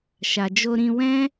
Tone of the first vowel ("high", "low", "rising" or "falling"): low